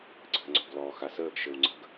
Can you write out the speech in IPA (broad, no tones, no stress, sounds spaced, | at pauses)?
ǀʰ ə̤ ŋ͡ǀ ɔ̤ ɡ l ɔː x a s əː ɡ ʃ ɘ w ŋ͡ǀ ə̤ ɡ